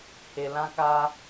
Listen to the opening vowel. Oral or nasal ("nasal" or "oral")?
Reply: oral